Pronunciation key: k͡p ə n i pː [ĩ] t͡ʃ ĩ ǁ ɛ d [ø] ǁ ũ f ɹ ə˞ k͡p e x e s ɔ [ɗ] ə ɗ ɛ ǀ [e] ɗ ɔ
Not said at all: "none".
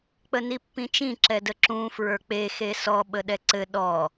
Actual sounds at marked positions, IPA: ĩ, ə, ɓ, ɘ

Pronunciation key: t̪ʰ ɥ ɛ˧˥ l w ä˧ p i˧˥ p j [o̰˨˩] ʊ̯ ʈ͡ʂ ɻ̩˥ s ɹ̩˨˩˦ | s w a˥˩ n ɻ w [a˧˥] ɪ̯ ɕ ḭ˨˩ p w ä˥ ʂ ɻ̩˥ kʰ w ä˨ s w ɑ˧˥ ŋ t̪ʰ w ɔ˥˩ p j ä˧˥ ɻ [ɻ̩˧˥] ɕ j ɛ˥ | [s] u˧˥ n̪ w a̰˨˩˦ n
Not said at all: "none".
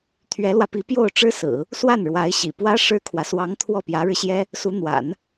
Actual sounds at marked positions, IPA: o˥˩, a˧˥, ɻ̩˧, s

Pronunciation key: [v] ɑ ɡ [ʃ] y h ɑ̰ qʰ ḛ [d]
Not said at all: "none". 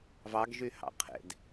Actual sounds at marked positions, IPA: v, ʒ, d

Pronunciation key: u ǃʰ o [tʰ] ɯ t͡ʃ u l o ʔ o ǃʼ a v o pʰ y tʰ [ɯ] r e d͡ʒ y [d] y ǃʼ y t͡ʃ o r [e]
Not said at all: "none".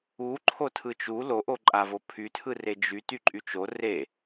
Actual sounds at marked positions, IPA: tʰ, ɯ, t, e

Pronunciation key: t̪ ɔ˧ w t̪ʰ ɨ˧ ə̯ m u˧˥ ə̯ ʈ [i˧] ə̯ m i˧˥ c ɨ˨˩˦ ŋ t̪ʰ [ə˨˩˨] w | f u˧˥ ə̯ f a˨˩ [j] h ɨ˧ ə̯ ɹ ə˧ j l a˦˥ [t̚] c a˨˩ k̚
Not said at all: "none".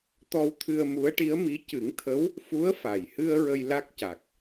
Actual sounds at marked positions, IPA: i˧˥, ə˧˥, j, k̚

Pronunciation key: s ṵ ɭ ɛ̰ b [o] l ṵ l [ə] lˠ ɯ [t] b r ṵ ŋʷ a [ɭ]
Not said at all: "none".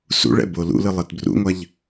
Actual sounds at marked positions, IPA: o, ɯ, t, ʎ

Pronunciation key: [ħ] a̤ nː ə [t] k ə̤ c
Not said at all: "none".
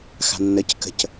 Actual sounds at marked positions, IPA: x, c

